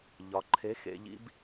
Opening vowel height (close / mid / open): open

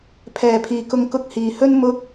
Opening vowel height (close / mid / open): mid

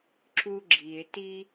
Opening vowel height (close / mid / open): close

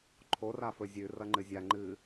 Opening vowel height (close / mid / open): mid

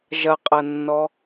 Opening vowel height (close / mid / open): open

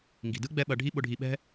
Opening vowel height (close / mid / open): close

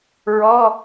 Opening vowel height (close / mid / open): mid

